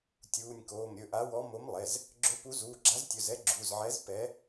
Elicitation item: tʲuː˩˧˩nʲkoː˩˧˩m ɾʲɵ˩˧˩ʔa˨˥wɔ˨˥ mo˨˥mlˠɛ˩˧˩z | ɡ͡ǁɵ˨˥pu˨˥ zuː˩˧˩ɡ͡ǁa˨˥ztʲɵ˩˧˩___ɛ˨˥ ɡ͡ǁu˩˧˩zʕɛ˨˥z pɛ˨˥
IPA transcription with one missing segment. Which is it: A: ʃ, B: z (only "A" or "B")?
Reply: B